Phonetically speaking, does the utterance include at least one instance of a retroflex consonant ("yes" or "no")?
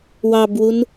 no